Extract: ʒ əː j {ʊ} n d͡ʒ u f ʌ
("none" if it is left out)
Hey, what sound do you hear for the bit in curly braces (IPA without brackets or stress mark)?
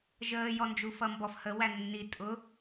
ɔ